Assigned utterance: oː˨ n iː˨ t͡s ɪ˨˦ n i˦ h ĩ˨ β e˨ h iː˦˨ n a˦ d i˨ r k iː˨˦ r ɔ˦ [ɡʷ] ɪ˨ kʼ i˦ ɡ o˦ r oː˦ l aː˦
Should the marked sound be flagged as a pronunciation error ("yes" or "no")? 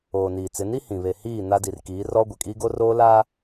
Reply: no